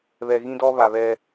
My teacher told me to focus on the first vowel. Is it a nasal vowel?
no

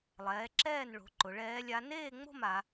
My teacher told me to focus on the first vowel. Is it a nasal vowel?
no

